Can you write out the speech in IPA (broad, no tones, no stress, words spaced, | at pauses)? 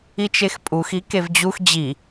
it͡ʃexpʼux ikevd͡ʑux d͡ʑi